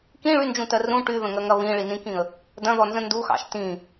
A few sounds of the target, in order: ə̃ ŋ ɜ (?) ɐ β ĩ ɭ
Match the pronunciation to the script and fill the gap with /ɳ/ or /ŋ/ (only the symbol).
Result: ŋ